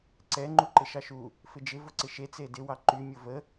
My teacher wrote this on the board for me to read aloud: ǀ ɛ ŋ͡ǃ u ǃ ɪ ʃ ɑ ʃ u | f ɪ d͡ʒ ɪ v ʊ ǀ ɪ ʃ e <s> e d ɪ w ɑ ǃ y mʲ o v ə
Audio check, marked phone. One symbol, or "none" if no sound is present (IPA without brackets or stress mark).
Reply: t͡s